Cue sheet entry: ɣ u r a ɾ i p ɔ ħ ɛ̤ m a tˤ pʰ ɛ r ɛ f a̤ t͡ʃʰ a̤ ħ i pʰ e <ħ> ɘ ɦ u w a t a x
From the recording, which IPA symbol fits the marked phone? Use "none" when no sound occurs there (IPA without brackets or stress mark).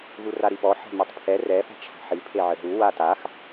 ʕ